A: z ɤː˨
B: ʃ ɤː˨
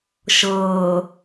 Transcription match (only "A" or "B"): B